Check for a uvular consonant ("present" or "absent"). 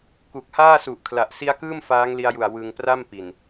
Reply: absent